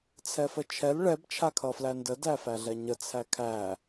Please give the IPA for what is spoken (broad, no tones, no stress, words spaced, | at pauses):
t͡sʰɛfət͡ʃʰɛl ɭɛb t͡ʃʰakʰʌflændə dæfæɮɛɲə t͡sʰækʰæ